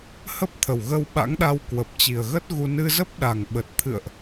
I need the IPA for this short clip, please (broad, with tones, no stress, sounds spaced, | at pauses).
h ə˦˥ p̚ t̪ʰ ə˨˩ w ɣ ə˧ w ɓ a̰˧˥ ŋ ɗ a˧ w k w ə˨˩ p̚ t͡ɕ i˨˩ ə̯ ɣ ə˦˥ t̚ ɣ u˧ n ɨ˧ z ə˦˥ p̚ ɗ a˨˩ ŋ ɓ ə˨˩ t̚ t̪ʰ ɨ̰˧˨ ə̯ ʔ